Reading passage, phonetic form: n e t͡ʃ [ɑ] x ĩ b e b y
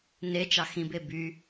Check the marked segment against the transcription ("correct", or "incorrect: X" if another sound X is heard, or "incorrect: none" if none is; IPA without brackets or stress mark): correct